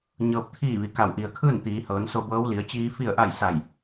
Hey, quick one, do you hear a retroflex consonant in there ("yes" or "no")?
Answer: no